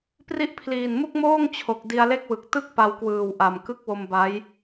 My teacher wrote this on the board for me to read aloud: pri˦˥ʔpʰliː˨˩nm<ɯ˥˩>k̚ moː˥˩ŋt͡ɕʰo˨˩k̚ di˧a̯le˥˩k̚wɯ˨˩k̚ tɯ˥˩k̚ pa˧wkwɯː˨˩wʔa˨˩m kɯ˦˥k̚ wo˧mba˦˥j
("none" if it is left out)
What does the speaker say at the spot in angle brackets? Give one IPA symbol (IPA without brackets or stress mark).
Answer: u˥˩